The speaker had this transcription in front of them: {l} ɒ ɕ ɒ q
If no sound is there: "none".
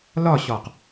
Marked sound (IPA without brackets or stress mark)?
l